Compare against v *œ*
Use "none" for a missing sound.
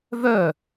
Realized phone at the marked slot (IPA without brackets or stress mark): œ